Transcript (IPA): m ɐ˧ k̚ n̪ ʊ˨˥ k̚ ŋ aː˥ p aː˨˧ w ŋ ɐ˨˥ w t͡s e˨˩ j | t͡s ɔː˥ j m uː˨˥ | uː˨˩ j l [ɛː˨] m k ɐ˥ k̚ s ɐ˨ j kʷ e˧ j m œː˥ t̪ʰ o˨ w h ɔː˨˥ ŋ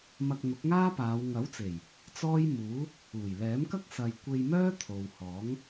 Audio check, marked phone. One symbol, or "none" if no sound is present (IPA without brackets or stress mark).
ɛː˨˥